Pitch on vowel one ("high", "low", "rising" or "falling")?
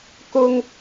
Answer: high